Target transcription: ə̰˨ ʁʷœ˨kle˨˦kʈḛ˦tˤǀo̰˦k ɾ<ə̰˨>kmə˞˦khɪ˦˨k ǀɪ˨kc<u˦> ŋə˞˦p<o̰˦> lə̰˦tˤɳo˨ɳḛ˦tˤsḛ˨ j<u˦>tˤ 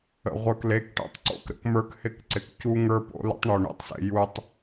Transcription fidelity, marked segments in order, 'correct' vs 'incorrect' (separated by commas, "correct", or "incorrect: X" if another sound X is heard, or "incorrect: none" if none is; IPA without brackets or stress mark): incorrect: ə̰˦, correct, correct, correct